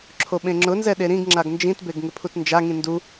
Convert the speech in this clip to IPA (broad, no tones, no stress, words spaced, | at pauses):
ǁʰoɓẽŋ͡ǁʊnzɛ ɗeɾĩɡŋ͡ǁaɡ nd͡ʒĩtbeɡ ŋɪpʰutnd͡ʒaŋĩ ndu